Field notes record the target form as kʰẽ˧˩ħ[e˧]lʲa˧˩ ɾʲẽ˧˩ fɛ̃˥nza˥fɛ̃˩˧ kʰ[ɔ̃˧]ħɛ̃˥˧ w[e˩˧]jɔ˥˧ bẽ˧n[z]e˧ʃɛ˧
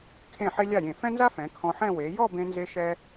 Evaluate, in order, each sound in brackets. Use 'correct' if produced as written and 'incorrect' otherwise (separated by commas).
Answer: correct, correct, correct, correct